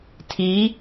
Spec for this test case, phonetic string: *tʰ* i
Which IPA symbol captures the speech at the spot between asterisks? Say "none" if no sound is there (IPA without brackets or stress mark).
tʰ